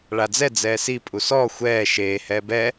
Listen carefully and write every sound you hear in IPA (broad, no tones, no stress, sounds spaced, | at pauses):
ɭ a d͡z ɛ d͡z ɛː s i pʼ u s ɔː xʷ ɛː ʃ eː h ɛː b ɛ